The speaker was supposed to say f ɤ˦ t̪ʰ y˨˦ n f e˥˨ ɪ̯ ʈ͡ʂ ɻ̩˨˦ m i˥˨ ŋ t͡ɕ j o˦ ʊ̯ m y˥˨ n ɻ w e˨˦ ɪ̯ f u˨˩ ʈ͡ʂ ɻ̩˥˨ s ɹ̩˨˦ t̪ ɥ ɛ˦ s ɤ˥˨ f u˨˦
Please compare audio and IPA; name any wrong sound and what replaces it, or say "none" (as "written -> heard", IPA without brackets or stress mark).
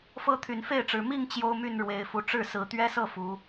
none